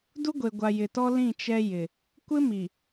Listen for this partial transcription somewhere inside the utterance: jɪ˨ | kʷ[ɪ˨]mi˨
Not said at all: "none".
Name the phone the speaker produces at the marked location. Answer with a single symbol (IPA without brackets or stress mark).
ɪ˦